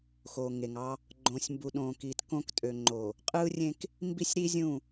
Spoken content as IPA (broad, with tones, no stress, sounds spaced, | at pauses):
x o˨ ŋ e˨ ŋ ɑ˦ | ɡ͡ǃ õ˨ sʲ m b u˨ ɗ õː˨ k iː˨ t k õ˦ k tʼ ø˨ ŋ͡ǃ oː˨ | qʼ ɯː˦ rʲ ẽ˦ k | m b i˦˨ sʲ ɾ i˦ zʲ ũ˦˨